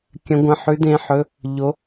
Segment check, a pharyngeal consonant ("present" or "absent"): present